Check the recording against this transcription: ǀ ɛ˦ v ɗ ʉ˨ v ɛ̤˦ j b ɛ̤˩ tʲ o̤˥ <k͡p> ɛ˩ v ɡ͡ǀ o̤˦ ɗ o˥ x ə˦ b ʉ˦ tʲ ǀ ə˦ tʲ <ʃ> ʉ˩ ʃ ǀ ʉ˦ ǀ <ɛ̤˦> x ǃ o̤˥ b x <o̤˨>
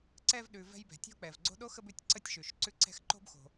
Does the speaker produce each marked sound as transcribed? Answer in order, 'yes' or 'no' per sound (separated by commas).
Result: yes, yes, yes, yes